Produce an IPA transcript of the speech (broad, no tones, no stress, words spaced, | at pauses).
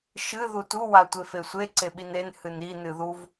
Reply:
ʃɨ ðutu watʷefesʷe ǀeɓinen hɨni nɨðuv